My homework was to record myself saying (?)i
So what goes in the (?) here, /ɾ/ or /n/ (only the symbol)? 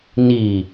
n